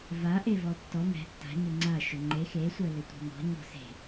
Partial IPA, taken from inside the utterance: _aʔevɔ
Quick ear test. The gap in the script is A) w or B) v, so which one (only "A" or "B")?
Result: B